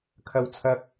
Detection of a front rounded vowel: absent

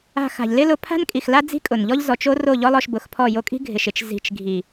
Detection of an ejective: present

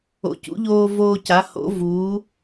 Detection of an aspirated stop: absent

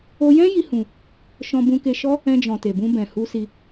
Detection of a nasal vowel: present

